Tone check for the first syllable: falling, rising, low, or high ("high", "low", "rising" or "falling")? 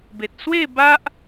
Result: low